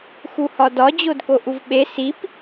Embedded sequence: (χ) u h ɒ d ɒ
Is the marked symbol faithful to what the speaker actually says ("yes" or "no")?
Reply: no